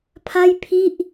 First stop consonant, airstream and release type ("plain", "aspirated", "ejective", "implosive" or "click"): aspirated